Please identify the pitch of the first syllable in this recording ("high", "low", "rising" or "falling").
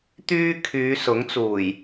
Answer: high